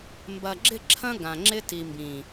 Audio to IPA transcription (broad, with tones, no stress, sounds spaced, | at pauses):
m b ɐ˨ ɡ͡ǁ ɪ˦˨ ǁʰ ɐ̃˦ ɡ ã˨ ŋ͡ǁ ɪ˦ t i˨ m b ĩ˨